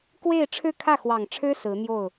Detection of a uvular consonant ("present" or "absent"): absent